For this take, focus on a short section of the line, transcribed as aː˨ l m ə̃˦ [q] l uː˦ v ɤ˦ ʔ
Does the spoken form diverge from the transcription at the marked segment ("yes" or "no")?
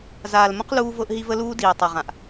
no